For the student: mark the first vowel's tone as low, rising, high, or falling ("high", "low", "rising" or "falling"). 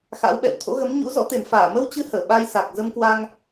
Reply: rising